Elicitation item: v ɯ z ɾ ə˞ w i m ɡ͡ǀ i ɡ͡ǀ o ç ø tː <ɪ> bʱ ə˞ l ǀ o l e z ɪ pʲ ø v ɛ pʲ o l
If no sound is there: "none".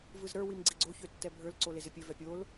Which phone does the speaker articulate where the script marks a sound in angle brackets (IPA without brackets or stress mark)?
ɛ